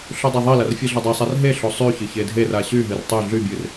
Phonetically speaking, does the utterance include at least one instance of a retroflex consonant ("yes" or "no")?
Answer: no